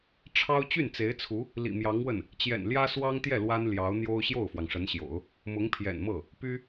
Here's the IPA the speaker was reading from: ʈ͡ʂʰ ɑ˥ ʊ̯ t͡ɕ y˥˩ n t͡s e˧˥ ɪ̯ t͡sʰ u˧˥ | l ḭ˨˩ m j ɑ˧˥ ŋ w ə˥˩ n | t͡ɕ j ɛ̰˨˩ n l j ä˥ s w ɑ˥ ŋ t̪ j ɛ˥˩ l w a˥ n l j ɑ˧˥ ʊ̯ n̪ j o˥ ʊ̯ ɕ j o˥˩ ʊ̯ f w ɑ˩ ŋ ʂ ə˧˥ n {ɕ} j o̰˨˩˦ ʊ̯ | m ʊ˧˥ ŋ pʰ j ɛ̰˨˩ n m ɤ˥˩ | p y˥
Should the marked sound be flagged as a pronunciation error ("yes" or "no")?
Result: no